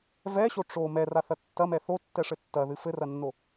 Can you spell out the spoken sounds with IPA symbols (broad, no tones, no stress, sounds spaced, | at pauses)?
v ɛ ɕ o ʈ͡ʂ o m ɛ r a θ ɐ tː ɐ m ɛ θ o tː ɛ ʂ ɘ tː ɐ ð ɨ f ɘ r ɐ nː o